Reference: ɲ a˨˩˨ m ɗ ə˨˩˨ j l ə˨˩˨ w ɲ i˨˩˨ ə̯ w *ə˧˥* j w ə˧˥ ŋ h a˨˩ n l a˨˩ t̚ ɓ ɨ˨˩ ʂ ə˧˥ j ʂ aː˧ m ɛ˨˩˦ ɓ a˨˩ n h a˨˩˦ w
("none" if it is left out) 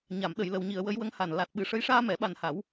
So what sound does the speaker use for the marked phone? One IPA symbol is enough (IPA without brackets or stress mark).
ə˧˥